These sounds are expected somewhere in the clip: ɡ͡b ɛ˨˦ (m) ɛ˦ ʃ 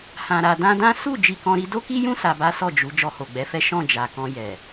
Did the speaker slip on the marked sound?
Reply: yes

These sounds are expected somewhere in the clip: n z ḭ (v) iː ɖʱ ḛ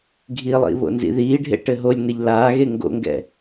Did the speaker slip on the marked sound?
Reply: yes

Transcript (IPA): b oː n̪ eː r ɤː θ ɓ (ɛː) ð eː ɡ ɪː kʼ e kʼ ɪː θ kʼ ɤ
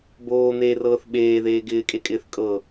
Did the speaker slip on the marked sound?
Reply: yes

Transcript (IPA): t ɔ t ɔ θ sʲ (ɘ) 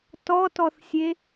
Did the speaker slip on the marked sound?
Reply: yes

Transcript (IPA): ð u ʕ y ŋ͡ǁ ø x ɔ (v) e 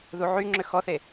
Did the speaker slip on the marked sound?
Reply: yes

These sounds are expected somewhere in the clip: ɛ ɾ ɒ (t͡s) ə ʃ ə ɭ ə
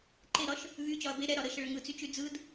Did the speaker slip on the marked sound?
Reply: yes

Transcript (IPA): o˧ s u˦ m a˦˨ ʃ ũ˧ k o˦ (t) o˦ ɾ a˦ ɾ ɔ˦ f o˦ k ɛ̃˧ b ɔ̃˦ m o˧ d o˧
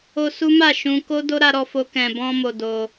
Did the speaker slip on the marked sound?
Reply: yes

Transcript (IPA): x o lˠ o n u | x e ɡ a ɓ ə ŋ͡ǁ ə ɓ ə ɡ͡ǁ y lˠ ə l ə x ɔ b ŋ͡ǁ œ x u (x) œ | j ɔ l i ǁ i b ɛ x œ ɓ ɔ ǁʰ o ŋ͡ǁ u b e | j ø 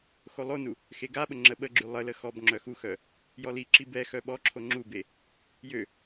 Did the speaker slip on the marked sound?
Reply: no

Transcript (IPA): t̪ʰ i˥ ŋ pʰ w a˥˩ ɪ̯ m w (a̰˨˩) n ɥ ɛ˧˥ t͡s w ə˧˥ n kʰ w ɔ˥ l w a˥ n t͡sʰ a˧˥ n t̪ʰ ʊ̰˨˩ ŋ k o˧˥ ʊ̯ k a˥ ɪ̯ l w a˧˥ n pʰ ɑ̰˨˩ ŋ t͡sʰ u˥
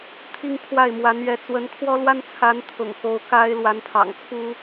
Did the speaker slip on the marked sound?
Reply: yes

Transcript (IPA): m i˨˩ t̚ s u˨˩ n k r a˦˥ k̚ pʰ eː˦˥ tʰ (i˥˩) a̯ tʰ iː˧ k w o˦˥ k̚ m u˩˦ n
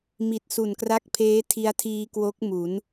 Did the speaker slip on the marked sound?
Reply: yes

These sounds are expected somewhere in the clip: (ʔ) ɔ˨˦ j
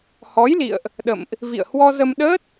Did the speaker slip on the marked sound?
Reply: yes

